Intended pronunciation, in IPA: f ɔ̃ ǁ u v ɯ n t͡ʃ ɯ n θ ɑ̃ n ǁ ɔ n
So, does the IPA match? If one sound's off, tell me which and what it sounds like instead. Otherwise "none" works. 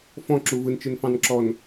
θ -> f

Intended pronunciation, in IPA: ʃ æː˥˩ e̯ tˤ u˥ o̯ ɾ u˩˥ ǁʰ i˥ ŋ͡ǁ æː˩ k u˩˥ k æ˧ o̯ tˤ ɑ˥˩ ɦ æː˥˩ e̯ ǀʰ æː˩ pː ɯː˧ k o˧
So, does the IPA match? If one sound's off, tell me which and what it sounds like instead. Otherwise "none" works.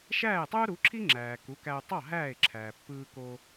ǀʰ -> ǁʰ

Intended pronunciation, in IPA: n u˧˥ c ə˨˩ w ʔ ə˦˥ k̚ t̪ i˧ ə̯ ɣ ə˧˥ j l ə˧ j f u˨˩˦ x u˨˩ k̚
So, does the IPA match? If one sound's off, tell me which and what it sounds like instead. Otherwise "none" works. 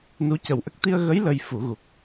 x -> ɣ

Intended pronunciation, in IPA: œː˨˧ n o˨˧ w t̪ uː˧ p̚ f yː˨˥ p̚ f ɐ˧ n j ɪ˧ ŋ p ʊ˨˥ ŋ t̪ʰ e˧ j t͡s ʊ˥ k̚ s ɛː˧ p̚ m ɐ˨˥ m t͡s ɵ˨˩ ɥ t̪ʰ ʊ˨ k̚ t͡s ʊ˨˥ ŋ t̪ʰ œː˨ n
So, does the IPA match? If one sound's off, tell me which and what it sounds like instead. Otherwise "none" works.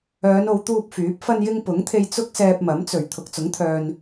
none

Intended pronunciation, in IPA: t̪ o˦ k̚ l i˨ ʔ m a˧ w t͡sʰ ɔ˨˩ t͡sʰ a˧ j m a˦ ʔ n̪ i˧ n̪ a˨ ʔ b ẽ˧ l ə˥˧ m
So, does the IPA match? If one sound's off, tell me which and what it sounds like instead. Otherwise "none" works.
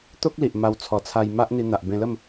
none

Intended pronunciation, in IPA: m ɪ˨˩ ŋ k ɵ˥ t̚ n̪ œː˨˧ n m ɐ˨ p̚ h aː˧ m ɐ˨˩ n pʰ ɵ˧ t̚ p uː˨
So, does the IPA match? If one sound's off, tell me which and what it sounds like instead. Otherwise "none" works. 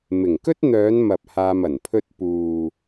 none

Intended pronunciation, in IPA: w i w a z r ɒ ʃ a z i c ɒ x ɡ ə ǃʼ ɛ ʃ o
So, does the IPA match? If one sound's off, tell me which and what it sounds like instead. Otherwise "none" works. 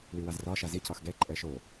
ə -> ɛ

